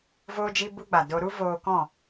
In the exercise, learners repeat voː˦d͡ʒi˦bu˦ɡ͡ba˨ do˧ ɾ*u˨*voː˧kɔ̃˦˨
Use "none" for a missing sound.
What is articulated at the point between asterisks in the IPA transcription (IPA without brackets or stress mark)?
u˦